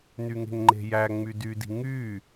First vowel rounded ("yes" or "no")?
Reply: yes